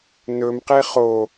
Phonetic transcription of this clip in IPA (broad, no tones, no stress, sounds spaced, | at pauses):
n ɵ m q e χ o